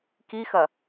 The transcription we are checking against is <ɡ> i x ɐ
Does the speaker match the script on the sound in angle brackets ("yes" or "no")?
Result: no